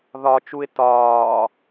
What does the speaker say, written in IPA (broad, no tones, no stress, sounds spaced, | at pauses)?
ð ɒ t͡ʃ u ɪ̯ t ɒː